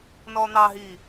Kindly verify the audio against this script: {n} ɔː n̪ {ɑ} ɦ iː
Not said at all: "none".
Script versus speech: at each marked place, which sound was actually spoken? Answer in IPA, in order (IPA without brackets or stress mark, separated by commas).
n, ɑ